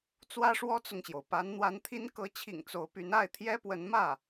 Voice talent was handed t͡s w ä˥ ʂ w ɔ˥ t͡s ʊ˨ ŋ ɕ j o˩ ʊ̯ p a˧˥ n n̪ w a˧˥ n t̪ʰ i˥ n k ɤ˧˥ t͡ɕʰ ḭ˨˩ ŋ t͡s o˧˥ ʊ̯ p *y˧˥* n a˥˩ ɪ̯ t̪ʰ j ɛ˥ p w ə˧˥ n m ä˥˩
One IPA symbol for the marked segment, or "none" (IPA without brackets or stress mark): y˧˥